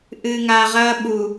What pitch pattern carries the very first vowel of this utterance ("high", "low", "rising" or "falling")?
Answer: low